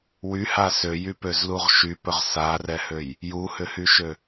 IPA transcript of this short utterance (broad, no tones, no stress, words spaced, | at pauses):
wyha søjypøzluʁ ʃypɵʁ sarɛhøj | juhʏhyʃø